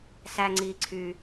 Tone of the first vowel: high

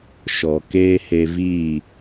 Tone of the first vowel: low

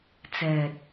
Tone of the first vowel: low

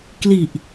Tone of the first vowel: low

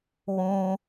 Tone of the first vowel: high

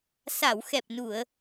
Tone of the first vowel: low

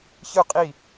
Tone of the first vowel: falling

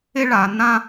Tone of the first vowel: high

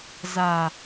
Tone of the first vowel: low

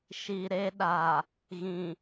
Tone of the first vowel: low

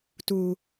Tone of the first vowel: low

